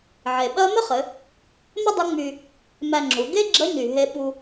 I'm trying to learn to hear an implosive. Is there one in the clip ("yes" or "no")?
yes